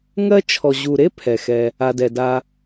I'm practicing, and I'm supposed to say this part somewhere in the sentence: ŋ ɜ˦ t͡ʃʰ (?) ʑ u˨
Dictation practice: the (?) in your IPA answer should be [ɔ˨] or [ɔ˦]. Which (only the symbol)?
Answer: ɔ˨